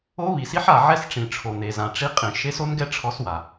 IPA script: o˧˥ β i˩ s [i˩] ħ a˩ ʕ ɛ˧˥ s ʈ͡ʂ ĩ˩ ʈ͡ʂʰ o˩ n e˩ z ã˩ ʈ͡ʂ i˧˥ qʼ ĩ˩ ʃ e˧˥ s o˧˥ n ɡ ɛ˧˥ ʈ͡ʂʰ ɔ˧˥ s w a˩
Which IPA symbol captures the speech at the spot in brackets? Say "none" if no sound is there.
i˧˥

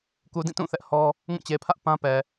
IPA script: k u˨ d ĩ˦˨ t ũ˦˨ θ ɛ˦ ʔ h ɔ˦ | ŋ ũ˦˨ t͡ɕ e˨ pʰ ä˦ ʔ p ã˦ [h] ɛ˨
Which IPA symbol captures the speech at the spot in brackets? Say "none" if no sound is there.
p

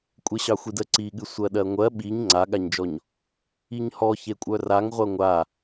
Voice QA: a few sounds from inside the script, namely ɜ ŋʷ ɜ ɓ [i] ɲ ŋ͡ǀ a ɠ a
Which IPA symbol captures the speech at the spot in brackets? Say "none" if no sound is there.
i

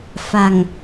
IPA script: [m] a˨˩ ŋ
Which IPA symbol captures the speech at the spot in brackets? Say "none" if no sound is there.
f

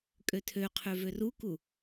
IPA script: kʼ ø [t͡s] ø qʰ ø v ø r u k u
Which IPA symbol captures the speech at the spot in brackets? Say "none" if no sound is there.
tʰ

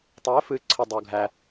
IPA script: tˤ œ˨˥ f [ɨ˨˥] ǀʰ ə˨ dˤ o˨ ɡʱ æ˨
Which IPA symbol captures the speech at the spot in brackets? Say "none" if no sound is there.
ɨ˨˥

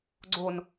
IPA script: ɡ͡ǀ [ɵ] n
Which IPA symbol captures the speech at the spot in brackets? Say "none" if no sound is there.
o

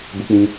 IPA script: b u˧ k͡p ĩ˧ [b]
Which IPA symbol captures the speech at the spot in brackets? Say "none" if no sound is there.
none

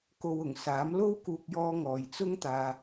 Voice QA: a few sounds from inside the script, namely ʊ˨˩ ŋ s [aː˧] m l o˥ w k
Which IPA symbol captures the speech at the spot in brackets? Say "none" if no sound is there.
aː˨˥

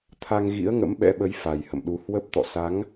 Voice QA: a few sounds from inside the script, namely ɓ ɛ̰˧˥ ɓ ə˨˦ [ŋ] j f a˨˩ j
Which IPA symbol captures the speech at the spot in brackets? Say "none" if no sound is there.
none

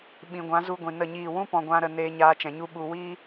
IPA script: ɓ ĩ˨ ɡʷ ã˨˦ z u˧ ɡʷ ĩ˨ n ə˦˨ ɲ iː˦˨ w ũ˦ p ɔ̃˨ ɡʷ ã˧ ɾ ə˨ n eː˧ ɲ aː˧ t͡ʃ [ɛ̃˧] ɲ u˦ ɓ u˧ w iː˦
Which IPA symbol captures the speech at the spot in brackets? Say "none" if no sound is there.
ɛ̃˨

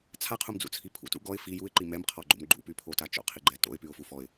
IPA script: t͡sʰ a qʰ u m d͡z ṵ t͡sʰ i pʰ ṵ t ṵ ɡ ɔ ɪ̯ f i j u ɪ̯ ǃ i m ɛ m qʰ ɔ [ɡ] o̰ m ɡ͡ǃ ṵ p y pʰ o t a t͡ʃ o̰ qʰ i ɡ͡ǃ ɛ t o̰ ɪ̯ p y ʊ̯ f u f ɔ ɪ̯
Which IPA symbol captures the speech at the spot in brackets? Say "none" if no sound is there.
ɡ͡ǃ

